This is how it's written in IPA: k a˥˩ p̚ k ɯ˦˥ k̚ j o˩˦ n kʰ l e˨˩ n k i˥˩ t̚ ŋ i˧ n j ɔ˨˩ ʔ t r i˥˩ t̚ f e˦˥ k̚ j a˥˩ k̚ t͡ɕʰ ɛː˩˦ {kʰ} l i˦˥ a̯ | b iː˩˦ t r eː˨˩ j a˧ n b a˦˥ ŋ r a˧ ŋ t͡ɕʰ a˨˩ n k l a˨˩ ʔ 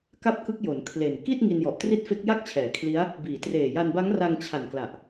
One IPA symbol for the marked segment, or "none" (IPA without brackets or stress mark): kʰ